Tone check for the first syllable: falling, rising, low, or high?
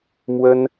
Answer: high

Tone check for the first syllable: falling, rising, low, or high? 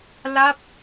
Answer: falling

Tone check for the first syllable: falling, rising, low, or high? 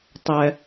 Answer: high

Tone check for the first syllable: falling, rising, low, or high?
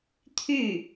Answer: falling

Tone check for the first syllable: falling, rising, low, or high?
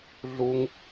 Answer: high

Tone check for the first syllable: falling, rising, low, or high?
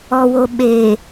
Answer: low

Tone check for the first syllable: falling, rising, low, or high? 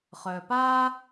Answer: low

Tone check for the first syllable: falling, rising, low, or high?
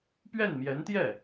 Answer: falling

